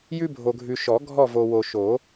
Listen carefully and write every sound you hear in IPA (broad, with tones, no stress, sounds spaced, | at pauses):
j ʉ˦ bʱ o˨ ɡʱ ʉ˨ ʃ ɔ˨˩˦ ɡʱ ɔ˦˨ v o˨ w o˨ ʃ o˨˩˦